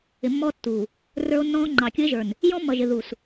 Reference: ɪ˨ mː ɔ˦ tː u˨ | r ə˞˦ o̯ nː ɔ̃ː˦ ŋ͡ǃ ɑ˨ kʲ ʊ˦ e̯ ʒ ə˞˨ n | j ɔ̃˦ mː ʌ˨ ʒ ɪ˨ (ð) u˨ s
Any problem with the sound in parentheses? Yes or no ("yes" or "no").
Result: no